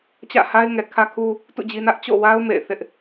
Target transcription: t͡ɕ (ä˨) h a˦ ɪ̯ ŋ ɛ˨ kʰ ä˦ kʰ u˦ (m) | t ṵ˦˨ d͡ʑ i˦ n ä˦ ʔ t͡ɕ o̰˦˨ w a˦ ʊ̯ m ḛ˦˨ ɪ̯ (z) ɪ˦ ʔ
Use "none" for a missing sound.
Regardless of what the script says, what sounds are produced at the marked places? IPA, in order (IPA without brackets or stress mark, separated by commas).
ä̰˦˨, none, θ